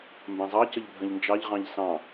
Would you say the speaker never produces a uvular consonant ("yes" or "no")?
no